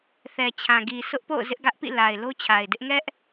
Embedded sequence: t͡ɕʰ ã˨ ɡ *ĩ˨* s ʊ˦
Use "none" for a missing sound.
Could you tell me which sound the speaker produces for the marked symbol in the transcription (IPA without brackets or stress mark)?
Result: i˨